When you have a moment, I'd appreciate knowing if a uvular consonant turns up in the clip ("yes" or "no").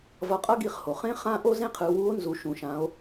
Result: yes